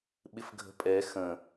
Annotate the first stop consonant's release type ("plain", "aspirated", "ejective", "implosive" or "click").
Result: implosive